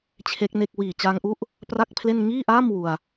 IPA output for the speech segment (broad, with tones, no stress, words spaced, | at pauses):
t͡ɕʰe˦˥k̚ne˥˩k̚ wiː˨˩t͡ɕaː˧ŋʔu˦˥ʔ | pra˥˩k̚pʰle˥˩n ŋiː˥˩ʔaː˥˩m wu˧a̯